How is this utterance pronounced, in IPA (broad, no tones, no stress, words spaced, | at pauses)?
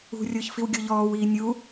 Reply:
ṳrʲʊːç fiwɡʲoʎɔːwiː nʲu